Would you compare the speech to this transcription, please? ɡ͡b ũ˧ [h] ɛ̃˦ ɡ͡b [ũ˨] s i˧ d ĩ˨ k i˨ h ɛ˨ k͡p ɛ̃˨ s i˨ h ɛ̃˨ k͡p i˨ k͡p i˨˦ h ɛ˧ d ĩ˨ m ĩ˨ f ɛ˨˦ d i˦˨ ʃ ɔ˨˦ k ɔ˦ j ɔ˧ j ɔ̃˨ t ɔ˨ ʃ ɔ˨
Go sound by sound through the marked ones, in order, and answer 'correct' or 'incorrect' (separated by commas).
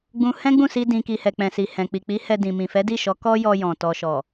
correct, incorrect